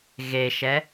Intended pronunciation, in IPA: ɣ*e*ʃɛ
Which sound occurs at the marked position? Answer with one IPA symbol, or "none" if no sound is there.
e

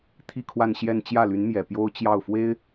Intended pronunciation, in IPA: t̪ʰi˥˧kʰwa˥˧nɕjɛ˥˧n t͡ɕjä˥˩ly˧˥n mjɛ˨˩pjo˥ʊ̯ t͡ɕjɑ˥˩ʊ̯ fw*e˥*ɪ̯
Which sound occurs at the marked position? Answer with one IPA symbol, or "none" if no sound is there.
e˥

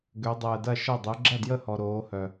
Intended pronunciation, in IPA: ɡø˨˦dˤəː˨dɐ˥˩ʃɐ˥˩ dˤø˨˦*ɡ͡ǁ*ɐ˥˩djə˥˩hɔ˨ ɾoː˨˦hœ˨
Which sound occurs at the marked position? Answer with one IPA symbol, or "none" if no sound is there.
ɡ͡ǁ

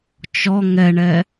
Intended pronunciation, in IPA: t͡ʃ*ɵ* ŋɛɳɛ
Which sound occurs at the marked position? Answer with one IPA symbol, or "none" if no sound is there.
ɔ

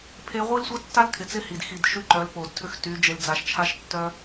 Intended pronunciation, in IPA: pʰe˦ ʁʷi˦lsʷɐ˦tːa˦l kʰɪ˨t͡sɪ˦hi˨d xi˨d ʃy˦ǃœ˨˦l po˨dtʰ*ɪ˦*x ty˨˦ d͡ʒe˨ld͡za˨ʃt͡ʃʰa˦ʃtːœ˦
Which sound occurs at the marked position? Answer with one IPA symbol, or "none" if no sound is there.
ʏ˦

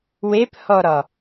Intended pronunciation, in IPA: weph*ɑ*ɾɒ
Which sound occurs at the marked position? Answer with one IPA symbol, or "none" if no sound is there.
ɔ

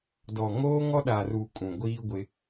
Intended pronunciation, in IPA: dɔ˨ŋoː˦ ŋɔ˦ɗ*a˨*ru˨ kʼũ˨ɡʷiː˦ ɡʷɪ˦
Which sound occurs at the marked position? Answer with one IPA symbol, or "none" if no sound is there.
a˨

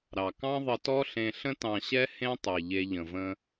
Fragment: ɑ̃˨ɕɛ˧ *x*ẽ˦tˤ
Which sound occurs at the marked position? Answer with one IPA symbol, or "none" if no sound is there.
h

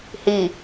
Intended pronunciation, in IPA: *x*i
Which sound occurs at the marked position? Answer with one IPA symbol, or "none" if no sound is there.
h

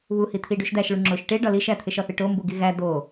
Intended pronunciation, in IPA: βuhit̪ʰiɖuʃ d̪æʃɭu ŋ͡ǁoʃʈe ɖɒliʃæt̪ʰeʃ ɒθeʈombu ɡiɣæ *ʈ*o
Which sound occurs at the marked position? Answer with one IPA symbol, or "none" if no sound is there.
d̪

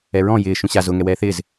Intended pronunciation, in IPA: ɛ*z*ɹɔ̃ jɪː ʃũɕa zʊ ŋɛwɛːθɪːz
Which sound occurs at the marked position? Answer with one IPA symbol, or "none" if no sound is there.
none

